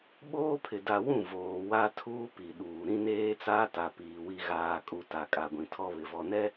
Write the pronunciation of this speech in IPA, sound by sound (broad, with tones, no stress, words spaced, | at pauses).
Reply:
ɓoː˦pʰɪ˨da˨wũ˦˨ voː˨ wa˦tʰuː˦ pi˨ɗuː˨ ɾĩ˦neː˦t͡saː˦ ta˨ piː˨wi˦ ɣaː˨kʼu˨ ta˨ kʼa˨ɡʷĩ˨tʰɔ˦ βɪ˨vɔ˨nɛ˦